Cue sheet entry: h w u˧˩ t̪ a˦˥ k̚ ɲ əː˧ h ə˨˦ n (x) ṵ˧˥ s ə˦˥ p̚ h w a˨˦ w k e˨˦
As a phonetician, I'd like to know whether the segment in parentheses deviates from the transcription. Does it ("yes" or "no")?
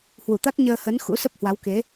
no